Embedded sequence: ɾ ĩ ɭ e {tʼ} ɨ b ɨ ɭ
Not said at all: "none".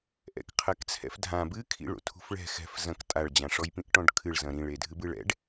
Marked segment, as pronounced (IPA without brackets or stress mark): dʱ